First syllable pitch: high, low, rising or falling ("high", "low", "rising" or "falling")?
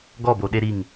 falling